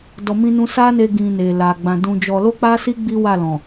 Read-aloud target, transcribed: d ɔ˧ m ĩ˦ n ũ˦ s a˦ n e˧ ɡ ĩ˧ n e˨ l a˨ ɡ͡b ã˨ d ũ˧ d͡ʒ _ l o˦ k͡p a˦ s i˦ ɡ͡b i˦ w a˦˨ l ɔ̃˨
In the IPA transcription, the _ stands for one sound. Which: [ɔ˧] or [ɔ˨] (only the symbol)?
ɔ˧